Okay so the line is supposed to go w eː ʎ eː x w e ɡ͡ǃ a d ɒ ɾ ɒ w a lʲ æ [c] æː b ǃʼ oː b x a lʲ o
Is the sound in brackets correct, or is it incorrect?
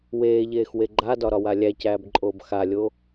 correct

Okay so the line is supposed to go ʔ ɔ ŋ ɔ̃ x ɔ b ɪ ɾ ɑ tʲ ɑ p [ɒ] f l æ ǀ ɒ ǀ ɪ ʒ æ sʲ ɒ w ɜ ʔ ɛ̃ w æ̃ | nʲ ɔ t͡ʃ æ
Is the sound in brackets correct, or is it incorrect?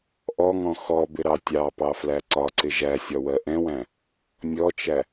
incorrect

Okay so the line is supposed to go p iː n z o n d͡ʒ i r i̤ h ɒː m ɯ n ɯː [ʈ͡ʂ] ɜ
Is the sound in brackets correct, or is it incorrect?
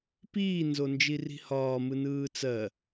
incorrect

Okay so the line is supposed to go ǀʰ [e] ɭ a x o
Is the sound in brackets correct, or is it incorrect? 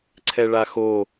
incorrect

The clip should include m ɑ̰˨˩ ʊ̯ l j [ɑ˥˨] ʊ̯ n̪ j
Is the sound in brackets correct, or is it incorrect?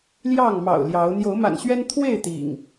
incorrect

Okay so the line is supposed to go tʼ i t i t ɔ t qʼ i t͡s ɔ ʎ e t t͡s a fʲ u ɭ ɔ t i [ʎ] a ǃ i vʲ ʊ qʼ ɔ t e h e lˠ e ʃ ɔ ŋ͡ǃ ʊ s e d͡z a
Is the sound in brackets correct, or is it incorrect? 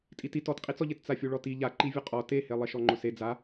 correct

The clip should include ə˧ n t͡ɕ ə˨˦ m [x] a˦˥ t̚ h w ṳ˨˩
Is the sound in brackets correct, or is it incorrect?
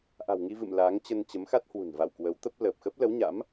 correct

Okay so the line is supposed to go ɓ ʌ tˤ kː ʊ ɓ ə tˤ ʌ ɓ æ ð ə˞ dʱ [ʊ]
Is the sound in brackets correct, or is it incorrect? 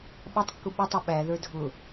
correct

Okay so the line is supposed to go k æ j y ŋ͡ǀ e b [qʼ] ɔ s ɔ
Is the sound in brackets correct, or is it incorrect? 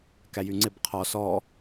incorrect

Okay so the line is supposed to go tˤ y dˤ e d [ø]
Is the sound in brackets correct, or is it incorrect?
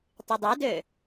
correct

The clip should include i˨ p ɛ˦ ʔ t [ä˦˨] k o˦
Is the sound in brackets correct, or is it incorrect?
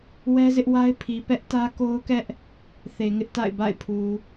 incorrect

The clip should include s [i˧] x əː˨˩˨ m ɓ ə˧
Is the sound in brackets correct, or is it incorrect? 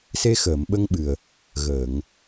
incorrect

